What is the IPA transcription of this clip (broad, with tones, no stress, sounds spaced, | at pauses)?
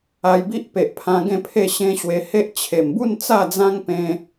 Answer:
a˧ j b i˦ ʔ p e˨ ʔ pʰ ã˧ ɡ ẽ˥˧ pʰ e˥˧ ɕ ẽ˧ ɕ w e˧ h e˦ ʔ t͡ɕʰ e˨˩ m b u˥˧ n t͡s a˥˧ d͡z ã˦ ŋ p ẽ˧